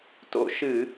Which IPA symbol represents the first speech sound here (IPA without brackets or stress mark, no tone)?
t